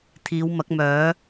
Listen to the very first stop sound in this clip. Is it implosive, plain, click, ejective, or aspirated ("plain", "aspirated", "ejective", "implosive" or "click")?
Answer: aspirated